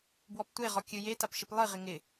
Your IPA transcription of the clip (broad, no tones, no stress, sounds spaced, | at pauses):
b w ɔ p tʷ e ʁ ɔ kʲ ɨ j e t a p ʃ ɪ p lˠ ɨ ʁ ɪ ŋ ɪ